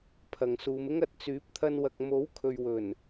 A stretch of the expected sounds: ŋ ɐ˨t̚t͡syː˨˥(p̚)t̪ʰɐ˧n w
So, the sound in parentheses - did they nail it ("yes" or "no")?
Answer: yes